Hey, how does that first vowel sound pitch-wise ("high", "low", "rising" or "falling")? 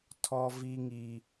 high